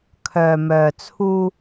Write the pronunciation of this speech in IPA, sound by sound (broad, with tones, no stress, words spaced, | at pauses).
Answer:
kʰœː˨mœː˨t͡sʰuː˧